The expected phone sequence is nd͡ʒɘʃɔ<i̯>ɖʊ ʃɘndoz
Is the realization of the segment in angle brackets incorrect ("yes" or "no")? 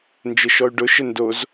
yes